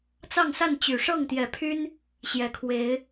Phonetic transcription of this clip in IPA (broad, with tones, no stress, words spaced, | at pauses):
t͡sɑ˥˨ŋsa˥˨nt͡ɕy˨˩ ʂɤ˥˨ŋt̪jɛ˨˦pʰy˦n | ɕjɛ˨˩kʰwe˨˦ɪ̯